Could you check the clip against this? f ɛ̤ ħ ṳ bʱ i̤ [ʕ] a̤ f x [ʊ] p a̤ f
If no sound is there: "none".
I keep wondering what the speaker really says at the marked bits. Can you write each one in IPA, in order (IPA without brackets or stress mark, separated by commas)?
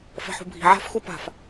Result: ʕ, u